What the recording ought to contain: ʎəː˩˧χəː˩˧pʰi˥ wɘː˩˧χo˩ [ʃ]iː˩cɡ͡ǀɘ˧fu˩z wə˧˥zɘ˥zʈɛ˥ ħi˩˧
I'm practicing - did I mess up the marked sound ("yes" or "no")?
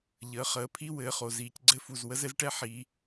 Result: yes